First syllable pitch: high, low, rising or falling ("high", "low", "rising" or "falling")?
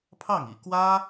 falling